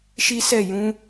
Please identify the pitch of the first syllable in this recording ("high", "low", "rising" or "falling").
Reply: high